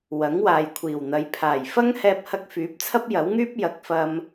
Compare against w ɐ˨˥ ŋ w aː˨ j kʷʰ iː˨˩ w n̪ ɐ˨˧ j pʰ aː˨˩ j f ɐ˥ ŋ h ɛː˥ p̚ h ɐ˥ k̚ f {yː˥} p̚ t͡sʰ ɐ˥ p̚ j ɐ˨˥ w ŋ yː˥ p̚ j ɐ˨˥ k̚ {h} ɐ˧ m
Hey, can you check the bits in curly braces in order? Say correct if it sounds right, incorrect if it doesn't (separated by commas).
incorrect, incorrect